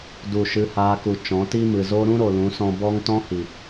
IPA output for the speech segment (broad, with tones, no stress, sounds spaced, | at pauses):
d u˦˨ ʃ ɨ˦ h aː˦ k u˧ t͡ʃ ɔ̃˨˦ t i˦ m ɨ˨ z o˦ ɾ ũ˦ ɾ o˨ l ũ˨˦ s ɔ̃˧ b ɔ˦ ŋ t ɔ̃˦ h i˨